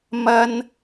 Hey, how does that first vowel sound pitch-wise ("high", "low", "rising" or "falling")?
high